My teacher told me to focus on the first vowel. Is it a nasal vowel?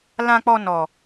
yes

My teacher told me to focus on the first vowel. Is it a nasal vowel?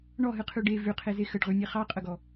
no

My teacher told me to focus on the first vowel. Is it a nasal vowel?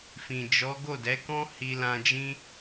yes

